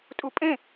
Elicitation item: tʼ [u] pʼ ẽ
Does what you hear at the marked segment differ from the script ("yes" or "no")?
no